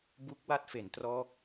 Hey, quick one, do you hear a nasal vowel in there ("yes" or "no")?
no